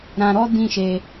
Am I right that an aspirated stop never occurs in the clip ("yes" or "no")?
yes